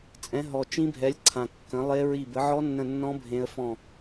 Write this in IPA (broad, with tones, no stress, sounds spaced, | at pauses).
t͡sʼ ɛ̃˨˥ ɦ ɔ˨˩ t͡ʃ ĩ˦˥ bʱ ɛ˨˥ lʲ ǀʰ ã˨˩ kː ə̃˨˥ lˠ e˦˥ ɹ i˦˨ b ə˨˥ ʕ ɔ˦˥ nː ə̃˦˨ nː ɔ̃˦˥ bʱ ẽ˦˥ ə̯ f ɔ̃˦˨